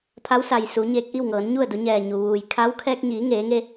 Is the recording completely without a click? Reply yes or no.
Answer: yes